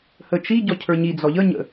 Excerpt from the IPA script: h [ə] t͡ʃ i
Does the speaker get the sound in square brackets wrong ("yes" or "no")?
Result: no